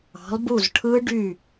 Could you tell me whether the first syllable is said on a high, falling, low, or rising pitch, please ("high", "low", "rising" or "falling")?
rising